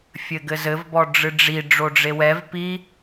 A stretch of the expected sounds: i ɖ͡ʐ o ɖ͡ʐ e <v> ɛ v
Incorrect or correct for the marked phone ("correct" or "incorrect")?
incorrect